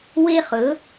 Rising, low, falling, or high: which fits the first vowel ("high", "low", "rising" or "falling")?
high